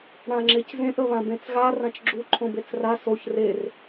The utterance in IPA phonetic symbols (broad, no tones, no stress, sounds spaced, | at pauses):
ɽ ã ŋ͡ǁ e c z ẽ ʔ ə β ã b ẽ t͡s ɣ a r ã t͡ʃ ɡ͡ǁ u ǃʰ õ b e t͡s r a s o ç r e r